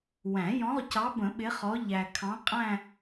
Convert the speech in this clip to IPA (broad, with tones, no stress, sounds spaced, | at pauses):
w æ̃˨˩˦ j ɔ̃˨˦ ʁ c ɑ˨˦ b ə̃˨˩˦ ɓ ɪ˨˦ χ ɔ˨˦ ʎ æ˨ kʰ ɑ̃˨˦ qʼ æ̃˥˧